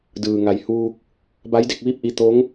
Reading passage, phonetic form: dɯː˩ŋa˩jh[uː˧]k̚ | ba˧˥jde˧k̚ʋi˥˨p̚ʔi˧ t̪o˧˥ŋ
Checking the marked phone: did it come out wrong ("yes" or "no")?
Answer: no